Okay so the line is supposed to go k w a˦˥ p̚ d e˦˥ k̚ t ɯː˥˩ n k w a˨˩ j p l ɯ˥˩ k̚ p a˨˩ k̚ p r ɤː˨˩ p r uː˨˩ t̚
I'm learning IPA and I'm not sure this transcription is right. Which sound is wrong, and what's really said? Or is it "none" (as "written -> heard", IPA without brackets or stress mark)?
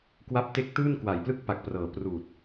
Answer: d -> t